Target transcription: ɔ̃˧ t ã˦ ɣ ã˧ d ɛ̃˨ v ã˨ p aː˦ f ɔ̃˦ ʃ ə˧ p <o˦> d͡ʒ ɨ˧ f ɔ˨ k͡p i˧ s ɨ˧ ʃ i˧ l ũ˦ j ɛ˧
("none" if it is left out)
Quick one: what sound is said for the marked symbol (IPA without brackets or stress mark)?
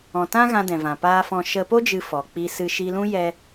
o˦